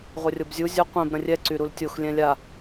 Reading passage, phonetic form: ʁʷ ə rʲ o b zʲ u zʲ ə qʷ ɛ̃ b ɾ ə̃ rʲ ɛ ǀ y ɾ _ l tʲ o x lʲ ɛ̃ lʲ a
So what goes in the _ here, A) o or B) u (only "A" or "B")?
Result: B